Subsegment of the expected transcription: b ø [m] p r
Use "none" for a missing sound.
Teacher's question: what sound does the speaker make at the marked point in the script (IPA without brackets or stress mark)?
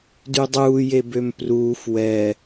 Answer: m